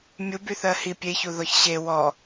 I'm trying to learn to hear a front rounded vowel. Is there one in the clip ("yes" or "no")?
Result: yes